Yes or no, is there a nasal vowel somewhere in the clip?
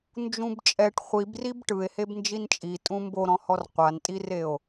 yes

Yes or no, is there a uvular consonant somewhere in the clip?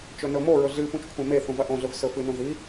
no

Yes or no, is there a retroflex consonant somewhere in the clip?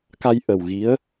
no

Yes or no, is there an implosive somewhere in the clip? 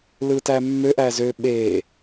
yes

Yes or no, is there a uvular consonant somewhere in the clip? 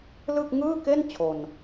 no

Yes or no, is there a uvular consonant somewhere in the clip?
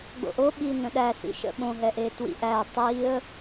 no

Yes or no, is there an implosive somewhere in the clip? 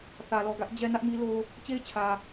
no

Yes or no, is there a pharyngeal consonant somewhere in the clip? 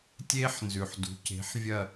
yes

